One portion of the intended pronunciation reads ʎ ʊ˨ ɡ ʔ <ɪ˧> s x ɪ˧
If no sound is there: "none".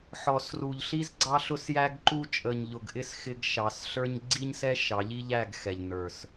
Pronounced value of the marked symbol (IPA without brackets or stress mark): ɪ˦˨